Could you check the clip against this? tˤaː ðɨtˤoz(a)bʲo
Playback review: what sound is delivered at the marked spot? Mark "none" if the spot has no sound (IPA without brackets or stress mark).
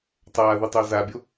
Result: a